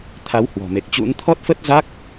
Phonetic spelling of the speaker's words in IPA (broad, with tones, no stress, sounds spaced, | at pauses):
t̪ʰ a˨˦ w h w ɔ̤˨˩ m e˨˩ k̚ t͡ɕ ṵ˧˥ n t̪ʰ ɔ˦˥ t̚ f ə˦˥ t̚ z a˦˥ k̚